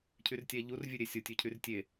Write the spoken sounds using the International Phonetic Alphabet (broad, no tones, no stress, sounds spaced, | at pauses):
cʰ y r tʲ æ ʎ u r vʲ ø ɾʲ e sʲ o tʲ ø cʰ y r tʲ e